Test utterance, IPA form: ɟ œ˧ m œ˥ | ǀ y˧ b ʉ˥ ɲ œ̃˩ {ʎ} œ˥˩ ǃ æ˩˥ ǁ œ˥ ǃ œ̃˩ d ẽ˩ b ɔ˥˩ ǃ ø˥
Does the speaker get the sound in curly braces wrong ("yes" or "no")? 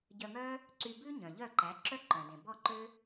no